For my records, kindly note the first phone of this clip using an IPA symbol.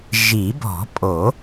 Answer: ʒ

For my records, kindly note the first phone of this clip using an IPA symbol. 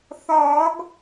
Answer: θ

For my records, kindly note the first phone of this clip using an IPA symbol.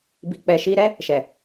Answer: b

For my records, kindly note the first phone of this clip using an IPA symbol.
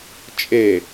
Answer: t͡ʃʼ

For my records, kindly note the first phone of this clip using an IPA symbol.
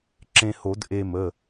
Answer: ǁ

